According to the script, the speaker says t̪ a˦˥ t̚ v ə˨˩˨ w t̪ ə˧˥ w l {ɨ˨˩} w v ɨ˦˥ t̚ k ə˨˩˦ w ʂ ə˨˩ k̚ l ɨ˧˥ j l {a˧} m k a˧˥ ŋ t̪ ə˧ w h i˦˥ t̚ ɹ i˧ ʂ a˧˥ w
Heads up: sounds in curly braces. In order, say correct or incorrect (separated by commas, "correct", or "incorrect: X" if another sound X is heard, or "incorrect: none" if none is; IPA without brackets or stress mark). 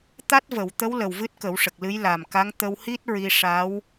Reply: incorrect: ə˨˩, incorrect: a˨˩